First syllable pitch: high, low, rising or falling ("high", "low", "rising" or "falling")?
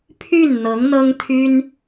falling